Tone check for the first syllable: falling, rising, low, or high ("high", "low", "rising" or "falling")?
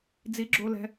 rising